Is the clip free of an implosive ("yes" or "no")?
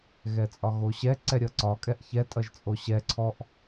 yes